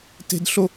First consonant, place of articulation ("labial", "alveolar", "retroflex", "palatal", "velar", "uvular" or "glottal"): alveolar